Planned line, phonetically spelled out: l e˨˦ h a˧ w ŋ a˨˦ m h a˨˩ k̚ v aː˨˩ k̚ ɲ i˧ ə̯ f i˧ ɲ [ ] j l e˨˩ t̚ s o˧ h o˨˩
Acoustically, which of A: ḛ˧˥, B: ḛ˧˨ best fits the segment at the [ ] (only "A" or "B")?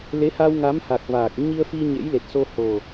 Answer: A